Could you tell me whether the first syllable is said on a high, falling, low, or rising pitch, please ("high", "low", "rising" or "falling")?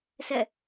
falling